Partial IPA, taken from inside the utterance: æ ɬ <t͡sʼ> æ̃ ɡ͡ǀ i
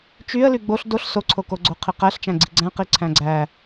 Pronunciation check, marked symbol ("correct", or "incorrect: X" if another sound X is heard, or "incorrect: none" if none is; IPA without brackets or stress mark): incorrect: t͡ʃ